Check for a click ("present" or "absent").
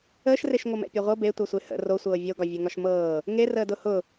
absent